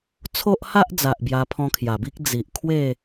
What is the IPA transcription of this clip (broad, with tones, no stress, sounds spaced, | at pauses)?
t͡sʰ o˦ ʔ h a˦ ʔ d͡z a˨ ʔ b j a˧ pʰ ɔ̃˧ kʰ j a˨˩ b i˦ k̚ d͡z i˨ ʔ kʰ w e˥˧